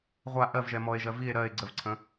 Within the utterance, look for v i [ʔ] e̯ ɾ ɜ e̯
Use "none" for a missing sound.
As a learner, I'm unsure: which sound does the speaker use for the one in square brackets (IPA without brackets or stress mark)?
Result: none